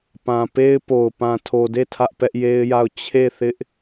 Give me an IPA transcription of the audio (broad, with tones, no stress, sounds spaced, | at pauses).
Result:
p ã˨ p e˦ ɪ̯ p o˨ ʊ̯ p ã˨ tʰ o˨ d e˦˨ tʰ ä˦ ʔ p ɛ˦ ʔ j e˦ ɪ̯ j a˦˨ ʊ̯ t͡ɕʰ e˦˨ θ ɪ˦ ʔ